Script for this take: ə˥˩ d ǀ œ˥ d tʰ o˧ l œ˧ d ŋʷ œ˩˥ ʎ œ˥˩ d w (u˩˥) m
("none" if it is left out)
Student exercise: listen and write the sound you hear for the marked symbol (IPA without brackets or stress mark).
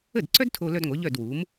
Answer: u˩˥